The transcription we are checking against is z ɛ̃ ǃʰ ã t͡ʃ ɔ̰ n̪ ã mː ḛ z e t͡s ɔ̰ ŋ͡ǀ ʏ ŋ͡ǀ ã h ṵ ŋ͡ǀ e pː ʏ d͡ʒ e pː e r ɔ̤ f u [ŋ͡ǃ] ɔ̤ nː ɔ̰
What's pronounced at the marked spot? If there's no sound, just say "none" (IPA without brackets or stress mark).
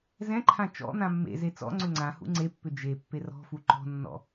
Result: ǃ